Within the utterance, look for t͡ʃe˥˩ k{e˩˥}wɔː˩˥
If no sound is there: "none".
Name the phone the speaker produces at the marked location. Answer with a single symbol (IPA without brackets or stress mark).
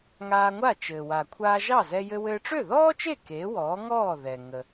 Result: e˩˥